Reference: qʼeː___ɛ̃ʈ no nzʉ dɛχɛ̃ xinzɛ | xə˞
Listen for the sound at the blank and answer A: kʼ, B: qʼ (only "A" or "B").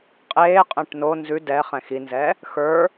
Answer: B